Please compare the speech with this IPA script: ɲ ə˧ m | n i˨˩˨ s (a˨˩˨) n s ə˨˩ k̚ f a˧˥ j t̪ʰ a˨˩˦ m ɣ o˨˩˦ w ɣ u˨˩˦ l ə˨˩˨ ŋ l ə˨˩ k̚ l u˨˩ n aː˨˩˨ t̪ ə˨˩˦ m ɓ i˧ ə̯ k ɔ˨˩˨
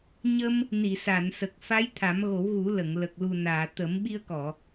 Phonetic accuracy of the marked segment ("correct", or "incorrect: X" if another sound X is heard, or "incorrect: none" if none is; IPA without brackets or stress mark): correct